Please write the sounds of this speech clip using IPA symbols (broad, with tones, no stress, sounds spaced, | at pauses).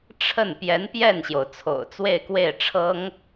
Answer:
ʈ͡ʂʰ ə˥˩ n p j ɛ˧˥ n p j ɛ˥˩ n ɕ j o˩ ʊ̯ t͡sʰ o̰˨˩ ʊ̯ t͡s w e˥˧ ɪ̯ k w e˥˩ ɪ̯ ʈ͡ʂʰ ɤ˥ ŋ